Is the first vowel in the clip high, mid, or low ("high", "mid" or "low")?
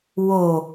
mid